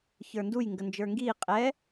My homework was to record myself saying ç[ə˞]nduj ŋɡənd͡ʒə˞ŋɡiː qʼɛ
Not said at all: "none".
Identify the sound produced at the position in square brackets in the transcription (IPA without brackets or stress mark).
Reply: ə˞